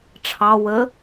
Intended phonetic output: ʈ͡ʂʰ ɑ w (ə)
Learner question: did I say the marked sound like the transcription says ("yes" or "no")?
yes